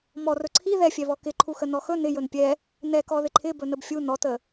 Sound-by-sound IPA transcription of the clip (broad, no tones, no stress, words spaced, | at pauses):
mɔ rɵǀʰi ðɛfʲɛβɔ kɪǃʰuxə nɔxɵ nɪ jɵnpʲɛ | nɛkɔ ðɪǃʰɪ bɵnəbfʲu nɔtə